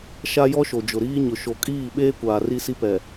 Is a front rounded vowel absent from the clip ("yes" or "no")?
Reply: yes